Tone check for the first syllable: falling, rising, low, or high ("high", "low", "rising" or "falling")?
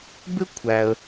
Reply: high